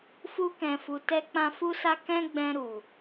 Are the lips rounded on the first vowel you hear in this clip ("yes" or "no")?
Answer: yes